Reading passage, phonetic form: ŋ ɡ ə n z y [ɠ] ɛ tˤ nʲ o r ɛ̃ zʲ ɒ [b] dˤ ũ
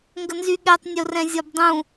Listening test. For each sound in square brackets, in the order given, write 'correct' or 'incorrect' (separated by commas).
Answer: correct, correct